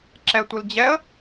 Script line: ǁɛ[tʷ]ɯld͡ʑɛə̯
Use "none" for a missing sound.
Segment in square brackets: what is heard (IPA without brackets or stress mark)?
tʷ